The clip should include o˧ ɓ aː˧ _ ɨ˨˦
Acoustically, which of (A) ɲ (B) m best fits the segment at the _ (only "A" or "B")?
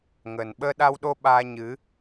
A